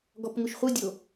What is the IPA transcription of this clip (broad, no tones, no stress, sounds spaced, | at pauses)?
ɡ ɔ p ŋ u ʃ χʷ ɯ dʲ o